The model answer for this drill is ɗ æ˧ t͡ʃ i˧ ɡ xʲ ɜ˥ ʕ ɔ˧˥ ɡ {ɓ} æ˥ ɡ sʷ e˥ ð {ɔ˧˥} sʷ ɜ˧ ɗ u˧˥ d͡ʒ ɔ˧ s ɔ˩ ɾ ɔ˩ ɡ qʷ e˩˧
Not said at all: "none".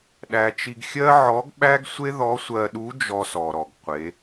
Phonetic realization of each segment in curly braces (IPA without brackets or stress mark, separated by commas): ɓ, ɔ˧˥